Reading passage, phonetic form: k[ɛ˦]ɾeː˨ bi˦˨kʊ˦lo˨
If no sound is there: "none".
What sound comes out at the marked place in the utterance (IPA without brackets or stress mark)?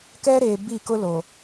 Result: ɛ˦